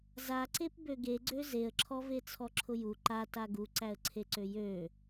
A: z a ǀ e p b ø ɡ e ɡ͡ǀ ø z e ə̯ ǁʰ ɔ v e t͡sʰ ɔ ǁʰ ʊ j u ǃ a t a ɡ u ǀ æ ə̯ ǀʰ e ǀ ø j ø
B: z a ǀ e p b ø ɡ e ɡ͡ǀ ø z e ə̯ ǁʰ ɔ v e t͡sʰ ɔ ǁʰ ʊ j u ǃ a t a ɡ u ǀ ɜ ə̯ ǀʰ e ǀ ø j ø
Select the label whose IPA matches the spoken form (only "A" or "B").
A